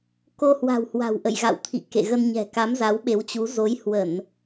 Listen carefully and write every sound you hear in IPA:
ko˧hwa̤˨˩whwa̤˨˩w ʔə̰˧˨jɣa̰˧˨wt̪ʰḭ˧˨ kḛ˧˨ɣə˧nɲɛ̤˨˩ ka˨˦mza˨˦wɓe˨˦wt͡ɕu˨˦ zo˨˦jhwə˧˩˨n

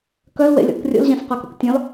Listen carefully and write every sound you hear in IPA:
kœlwḛlʲɔ̰k rʲo̰lʑɛ̃sqœko̰k tʲɔ̃l

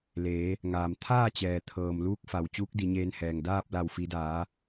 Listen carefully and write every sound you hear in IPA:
leː˩˧ | ŋaː˩m t̪ʰaː˥˨t͡ɕɛː˩ t̪ʰɤː˩m luː˧˥k̚fa˩w t͡ɕuː˧˥k̚di˩˧ɲeː˧nhɛː˩ŋ daː˥˨p̚ la˧˩wfi˩˧daː˩˧

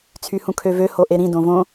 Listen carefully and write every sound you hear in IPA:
t͡sʰyhũkʰøvø hoʔeɾĩ dõvõ

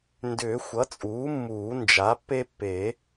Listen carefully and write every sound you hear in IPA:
ndʏː˨˩˦ xʷʌ˩˥t͡sʼuː˩˥mːuː˨˩˦ nd͡ʒa˩˥pːe˦pːe˨˩˦

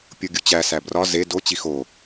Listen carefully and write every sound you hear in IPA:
pʲoɡʲut͡ɕæ sæbrɒ ze do t͡ɕixo

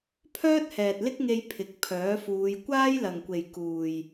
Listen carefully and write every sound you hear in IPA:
pʰœː˥t̚hɛː˨t̚lɪ˥k̚ŋe˧j pʰɪ˨k̚ pʰœː˨˥fuː˨˧j kʷaː˥jlɐ˨ŋkʷe˨j kuː˨j

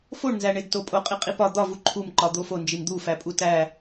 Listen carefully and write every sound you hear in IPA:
foɳnzæ ɳedtopʼo qʼiqʼipɒ d̪ɒvu ǃʰumǃɒ d̪ofo nd͡ʒimd̪ufæ pʼutæ

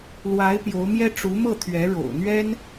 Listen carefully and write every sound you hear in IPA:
lwa˧˥ɪ̯ pjo˧˥ʊ̯mjɛ˥ ʈ͡ʂu˧˥mɤ˥˩t̪ʰɥɛ˧˥ ɻo̰˨˩ʊ̯ n̪ɥɛ˥n

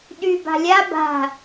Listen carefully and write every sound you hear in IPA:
ɗy ba̤lʲa ba̤

